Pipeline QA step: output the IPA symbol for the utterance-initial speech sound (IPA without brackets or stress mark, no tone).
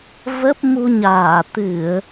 v